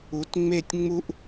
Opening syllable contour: rising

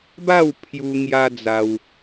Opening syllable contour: falling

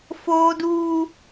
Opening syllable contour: high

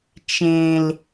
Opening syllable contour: low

